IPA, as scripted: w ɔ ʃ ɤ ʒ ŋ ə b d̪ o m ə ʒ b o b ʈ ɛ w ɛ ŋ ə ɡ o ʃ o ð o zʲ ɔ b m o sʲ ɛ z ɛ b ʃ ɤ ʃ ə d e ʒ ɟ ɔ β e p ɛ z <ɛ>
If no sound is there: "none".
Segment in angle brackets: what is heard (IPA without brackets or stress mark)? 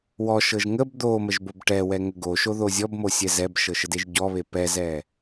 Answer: ɛ